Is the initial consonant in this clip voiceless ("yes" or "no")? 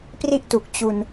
yes